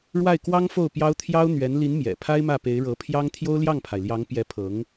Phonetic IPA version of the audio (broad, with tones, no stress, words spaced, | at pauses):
ɻwa˥˩ɪ̯ kwɑ˥ŋ fo˥˩ʊ̯pjɑ˥ʊ̯ t̪ʰjɑ˥ʊ̯ n̪ɥɛ˧˥n li˧˥n mjɛ̰˨˩pʰa˥ɪ̯mä˥˩ pe˧˥ɪ̯ɻɤ˧˥pʰjɑ˥ŋ t̪ʰjo˥ʊ̯ljɑ˥˩ŋpʰa˩ɪ̯ljɑ˧˥ŋ pjɛ˧˥pʰɤ˧˥ŋ